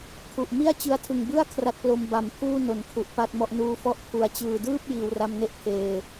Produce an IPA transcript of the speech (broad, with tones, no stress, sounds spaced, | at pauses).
kʰ u˨˩ ʔ m i˥˩ a̯ t͡ɕ ɯ˧ a̯ tʰ ɯ˨˩ ŋ b ɯ˥˩ a̯ kʰ r a˦˥ t̚ p l o˧ m b a˨˩ m pʰ uː˥˩ n o˩˦ n kʰ u˨˩ ʔ p a˥˩ t̚ m ɔ˥˩ ʔ n uː˧ f ɔ˦˥ ʔ pʰ u˩˦ a̯ t͡ɕ ɯː˨˩ d ɯː˥˩ p̚ j iː˩˦ w r a˧ m n e˥˩ ʔ pʰ eː˨˩